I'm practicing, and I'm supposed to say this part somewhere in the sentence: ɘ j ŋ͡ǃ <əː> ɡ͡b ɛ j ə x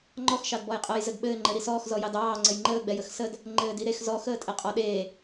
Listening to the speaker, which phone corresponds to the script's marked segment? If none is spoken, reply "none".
əː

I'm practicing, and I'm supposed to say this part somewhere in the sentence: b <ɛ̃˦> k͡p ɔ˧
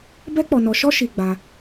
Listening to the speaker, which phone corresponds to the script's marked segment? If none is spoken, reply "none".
ɛ˦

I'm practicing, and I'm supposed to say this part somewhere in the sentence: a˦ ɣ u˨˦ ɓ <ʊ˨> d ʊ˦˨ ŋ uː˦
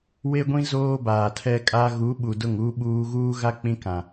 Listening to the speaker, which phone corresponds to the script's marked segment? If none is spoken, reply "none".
u˨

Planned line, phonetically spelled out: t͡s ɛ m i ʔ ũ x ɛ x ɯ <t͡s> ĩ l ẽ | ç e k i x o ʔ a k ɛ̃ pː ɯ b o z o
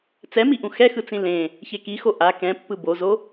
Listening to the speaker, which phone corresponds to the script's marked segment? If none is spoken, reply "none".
t͡s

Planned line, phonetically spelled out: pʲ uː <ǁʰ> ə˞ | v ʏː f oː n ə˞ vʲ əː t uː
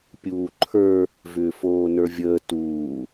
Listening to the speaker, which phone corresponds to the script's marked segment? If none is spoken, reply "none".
ǃʰ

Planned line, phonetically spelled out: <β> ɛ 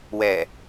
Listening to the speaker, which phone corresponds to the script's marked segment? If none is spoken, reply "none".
w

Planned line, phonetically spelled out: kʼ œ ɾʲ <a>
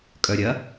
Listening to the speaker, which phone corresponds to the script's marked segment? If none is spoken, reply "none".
ɐ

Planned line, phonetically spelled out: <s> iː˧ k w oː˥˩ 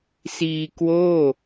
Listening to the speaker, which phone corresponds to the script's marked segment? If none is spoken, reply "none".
s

